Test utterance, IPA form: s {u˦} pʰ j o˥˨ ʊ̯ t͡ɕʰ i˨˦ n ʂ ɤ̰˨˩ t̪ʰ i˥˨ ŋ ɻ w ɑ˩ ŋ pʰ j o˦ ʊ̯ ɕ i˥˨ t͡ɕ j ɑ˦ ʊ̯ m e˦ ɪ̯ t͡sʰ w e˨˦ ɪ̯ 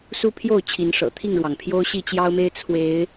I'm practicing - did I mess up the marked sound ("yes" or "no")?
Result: no